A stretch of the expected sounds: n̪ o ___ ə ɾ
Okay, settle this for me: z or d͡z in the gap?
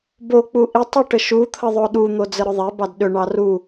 d͡z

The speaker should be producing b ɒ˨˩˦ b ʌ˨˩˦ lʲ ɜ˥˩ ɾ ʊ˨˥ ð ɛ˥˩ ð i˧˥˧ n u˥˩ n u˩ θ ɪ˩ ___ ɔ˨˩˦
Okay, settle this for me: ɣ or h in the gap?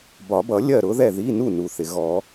ɣ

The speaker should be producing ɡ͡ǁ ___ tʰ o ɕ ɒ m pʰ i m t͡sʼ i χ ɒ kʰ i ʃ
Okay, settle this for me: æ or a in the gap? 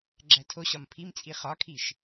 æ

